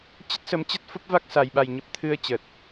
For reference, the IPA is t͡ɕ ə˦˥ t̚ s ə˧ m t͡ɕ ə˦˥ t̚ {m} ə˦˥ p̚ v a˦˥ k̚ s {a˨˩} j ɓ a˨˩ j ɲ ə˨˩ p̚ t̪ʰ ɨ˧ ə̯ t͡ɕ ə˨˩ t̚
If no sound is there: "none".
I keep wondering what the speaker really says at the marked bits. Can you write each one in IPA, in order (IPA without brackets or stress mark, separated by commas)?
f, a˨˩